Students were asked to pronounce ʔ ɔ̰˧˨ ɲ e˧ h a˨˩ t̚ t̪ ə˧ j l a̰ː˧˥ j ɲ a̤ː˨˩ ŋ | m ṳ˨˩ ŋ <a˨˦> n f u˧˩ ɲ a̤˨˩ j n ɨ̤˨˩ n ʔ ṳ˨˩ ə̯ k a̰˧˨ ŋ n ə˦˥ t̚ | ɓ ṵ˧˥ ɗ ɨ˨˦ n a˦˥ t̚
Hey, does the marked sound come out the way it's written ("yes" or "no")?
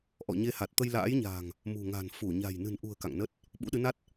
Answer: no